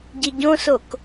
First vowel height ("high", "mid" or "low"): high